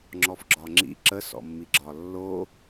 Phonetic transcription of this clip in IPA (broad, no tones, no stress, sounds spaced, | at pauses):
ŋ͡ǁ ɔ f ɡ͡ǁ ɒ ŋ͡ǁ ḭ ǁ ə s ɔ̰ mː i ɡ͡ǁ ɒ lː o